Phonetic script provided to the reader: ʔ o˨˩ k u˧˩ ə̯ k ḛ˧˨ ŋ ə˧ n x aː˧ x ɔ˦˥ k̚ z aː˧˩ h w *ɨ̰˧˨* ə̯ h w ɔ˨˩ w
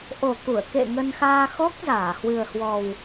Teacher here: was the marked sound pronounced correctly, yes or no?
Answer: no